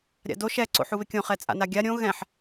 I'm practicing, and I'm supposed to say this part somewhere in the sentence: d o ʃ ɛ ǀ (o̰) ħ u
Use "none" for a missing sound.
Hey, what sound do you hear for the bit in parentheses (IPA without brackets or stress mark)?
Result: o̰